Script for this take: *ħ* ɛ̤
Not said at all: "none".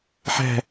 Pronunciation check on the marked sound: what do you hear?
ħ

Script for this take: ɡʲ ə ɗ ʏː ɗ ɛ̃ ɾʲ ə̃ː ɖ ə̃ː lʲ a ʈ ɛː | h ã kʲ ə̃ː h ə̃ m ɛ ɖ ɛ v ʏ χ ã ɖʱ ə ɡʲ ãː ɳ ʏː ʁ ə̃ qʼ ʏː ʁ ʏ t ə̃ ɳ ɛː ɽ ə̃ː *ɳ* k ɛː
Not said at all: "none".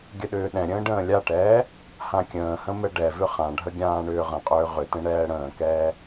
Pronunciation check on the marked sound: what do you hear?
none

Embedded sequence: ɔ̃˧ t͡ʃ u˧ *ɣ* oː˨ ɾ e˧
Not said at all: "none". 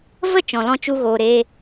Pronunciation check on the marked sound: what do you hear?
ɣ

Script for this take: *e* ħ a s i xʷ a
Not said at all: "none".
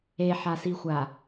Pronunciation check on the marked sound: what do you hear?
e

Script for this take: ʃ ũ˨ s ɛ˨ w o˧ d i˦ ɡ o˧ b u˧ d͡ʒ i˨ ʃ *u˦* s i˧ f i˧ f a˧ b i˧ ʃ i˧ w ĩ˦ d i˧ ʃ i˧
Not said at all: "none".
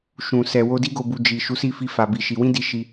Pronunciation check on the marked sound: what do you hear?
u˨˦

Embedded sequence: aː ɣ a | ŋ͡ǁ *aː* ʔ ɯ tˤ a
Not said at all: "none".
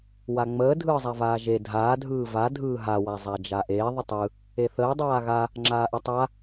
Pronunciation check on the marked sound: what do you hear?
aː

